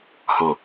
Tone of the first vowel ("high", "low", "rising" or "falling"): low